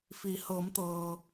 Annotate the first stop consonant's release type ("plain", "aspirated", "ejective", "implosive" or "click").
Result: plain